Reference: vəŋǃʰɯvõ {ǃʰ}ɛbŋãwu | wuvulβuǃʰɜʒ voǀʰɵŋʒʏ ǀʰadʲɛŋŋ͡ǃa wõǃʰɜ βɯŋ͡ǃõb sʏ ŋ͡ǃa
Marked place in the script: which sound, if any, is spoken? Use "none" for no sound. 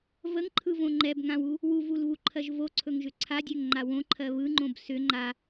ŋ͡ǃ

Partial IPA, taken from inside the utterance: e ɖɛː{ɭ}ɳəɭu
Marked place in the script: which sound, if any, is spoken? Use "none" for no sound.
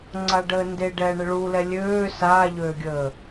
none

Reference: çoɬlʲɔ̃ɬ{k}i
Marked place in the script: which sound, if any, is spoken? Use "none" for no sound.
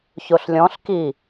k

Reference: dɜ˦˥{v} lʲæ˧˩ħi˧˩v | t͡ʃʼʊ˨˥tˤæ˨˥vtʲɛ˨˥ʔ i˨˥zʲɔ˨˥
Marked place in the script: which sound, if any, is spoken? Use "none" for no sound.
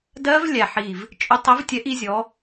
v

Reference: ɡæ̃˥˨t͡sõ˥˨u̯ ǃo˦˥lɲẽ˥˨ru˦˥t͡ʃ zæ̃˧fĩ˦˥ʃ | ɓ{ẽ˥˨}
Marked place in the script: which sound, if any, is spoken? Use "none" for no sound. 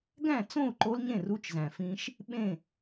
ẽ˥˨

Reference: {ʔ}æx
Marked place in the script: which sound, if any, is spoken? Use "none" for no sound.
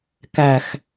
k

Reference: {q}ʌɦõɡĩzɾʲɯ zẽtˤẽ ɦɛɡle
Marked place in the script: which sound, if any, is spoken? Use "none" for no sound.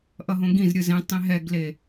ʔ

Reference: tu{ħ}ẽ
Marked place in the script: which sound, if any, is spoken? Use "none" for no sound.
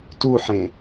ħ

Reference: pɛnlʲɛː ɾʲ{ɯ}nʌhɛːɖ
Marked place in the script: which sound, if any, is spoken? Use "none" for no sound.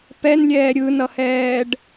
ɯ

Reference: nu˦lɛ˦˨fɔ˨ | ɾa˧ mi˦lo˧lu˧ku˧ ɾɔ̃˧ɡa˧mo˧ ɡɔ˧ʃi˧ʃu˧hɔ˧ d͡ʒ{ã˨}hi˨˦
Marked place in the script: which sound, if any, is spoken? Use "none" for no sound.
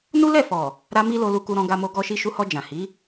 ã˨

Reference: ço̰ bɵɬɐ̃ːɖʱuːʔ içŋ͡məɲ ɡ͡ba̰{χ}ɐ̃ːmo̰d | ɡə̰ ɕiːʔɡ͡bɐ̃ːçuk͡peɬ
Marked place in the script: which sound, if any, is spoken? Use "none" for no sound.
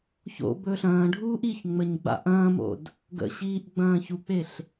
ʔ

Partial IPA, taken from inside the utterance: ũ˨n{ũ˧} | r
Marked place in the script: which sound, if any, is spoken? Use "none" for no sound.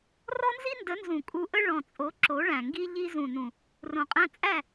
ũ˨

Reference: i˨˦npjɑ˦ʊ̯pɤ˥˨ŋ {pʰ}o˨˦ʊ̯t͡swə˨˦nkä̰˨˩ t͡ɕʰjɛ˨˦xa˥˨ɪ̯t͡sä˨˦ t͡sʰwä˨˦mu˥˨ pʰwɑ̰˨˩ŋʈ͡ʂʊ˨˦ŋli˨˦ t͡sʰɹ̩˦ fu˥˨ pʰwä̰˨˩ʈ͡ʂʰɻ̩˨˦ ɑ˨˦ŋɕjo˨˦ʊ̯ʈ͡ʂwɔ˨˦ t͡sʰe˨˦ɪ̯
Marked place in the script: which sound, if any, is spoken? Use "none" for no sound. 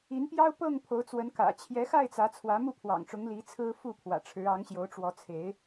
pʰ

